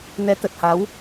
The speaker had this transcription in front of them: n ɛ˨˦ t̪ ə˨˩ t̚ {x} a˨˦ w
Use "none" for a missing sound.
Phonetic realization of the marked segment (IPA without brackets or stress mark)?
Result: h